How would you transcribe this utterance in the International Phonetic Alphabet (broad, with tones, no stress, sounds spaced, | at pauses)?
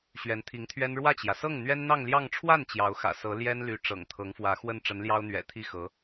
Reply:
ɕ ɥ ɛ˧˥ n t̪ʰ i˧˥ ŋ t̪ʰ ɥ ɛ˥ n ɻ w ä˥˩ t͡ɕ j ä˩ s ɤ˥˩ ŋ n̪ ɥ ɛ˥ n n̪ ɑ˥˧ ŋ l j ɑ˥˧ ŋ ʈ͡ʂʰ w a˥˩ n t͡ɕ j ɑ˧˥ ʊ̯ x ä̰˨˩ s ɤ˧˥ l j ɛ˥ n l y˧˥ ʈ͡ʂ ɤ̰˨˩ ŋ t̪ʰ ɤ˧˥ ŋ f w ä˧˥ x w ə˥˩ n ʈ͡ʂ ə˧˥ n l j ɑ˥ ʊ̯ n̪ ɥ ɛ̰˨˩ t̪ʰ i˥˩ x ɤ˧˥